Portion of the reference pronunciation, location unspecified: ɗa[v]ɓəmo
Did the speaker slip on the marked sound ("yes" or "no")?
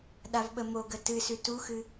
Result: no